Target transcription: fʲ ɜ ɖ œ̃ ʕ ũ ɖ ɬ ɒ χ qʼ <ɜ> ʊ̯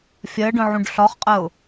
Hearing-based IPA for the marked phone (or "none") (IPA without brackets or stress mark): ɜ